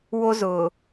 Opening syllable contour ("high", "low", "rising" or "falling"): high